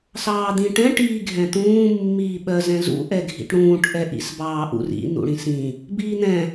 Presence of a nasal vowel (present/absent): present